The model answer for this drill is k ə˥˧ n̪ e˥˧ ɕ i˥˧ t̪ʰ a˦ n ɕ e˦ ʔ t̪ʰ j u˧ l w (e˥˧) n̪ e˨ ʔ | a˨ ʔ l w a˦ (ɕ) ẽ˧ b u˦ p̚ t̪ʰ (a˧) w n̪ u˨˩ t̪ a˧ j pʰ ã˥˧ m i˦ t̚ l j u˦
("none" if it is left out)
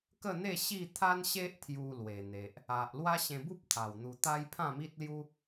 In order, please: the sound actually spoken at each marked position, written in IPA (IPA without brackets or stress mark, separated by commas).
e˨˩, ɕ, a˨˩